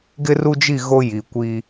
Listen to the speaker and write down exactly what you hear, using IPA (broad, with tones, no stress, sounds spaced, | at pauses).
ɡ ɪ˦ r u˦ d͡ʒ i˦˨ ɣ o˦ j i˨ kʷ iː˦